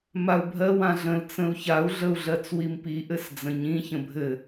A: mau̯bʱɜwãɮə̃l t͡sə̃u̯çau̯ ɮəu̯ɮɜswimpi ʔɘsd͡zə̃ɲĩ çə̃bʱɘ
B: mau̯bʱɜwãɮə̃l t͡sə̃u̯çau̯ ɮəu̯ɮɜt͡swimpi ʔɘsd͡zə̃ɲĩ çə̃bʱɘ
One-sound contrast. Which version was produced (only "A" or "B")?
B